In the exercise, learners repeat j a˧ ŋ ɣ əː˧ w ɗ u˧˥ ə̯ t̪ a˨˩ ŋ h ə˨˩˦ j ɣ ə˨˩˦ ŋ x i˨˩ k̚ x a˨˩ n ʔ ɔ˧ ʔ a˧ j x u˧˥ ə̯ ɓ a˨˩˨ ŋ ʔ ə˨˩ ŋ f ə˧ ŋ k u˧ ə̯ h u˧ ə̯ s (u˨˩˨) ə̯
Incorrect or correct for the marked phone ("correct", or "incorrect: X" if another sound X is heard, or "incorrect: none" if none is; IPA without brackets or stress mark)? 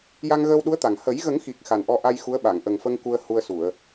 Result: correct